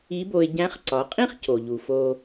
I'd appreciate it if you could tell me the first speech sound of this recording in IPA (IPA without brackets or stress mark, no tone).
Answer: i